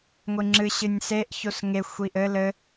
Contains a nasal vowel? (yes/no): no